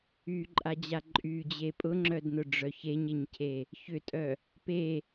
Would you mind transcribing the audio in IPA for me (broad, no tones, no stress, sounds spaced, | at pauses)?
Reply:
y ǃʼ a d͡ʑ a ǃʼ y d͡ʑ e pʼ ʊ ŋ͡ǁ œ d n ʊ ɖ͡ʐ œ ç e ɲ e ɲ cʰ e | ç ʏ tʼ œ | p e